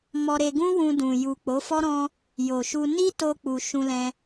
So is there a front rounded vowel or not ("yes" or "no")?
no